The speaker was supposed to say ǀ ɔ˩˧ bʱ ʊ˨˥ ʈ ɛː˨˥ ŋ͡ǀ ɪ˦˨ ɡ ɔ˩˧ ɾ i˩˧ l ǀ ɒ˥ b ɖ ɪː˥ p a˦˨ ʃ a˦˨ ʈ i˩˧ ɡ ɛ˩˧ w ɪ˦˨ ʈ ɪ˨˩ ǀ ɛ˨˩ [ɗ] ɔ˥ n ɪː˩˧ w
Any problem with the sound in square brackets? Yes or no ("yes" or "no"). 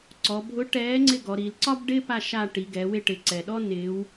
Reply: no